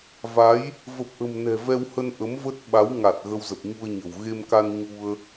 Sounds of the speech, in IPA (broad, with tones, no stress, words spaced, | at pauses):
va˨˦j | və˨˩p̚ʔə̤˨˩mnɛ̤˨˩ vɛ˧whə˧n ʔə˨˦m və˦˥t̚ ɓa˨˦w ŋa˨˩t̚ ɣə˧wzə˨˩p̚ɲu˧ə̯ɲə̤˨˩w ɣe˧mka˧n ɲu˧ə̯